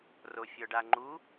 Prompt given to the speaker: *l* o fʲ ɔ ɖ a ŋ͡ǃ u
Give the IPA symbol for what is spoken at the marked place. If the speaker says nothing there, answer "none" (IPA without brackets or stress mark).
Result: r